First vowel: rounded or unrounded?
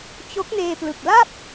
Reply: rounded